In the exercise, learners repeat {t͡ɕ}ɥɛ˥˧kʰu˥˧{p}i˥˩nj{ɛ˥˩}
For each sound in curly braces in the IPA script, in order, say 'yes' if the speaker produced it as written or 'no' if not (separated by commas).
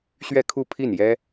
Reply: no, no, no